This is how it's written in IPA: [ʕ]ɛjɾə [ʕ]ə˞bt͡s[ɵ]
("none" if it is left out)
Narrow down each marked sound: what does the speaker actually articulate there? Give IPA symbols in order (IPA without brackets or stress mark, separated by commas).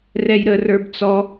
r, r, ɔ